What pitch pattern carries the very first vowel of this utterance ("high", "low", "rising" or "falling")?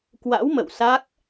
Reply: rising